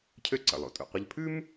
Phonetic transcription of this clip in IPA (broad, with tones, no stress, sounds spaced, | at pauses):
cʰ ø˥ ǀ ə̰˩ lˠ o̰˩ tʼ ṵ˩ qʷ ə˥ ʎ pʰ ʉ˥ m